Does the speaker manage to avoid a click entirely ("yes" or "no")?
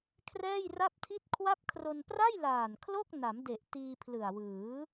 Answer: yes